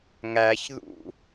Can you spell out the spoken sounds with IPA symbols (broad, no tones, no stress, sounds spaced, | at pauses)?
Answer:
ŋ æ ç ð ṵ